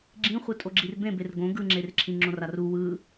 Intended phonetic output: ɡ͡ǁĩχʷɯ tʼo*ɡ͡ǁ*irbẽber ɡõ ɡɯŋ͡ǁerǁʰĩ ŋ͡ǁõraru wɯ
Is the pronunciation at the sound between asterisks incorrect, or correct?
correct